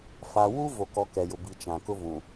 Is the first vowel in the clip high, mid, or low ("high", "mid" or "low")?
low